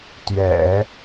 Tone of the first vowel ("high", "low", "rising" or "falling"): low